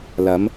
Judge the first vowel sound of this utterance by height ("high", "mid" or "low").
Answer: low